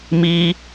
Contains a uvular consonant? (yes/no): no